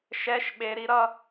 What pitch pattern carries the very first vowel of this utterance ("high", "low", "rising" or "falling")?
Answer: high